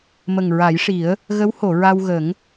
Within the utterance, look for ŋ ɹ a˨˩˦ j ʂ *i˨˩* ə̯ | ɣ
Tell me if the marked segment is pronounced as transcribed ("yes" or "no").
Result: no